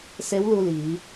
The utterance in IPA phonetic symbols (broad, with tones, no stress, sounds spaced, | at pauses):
s e˧˥ w l u˧ l iː˩˧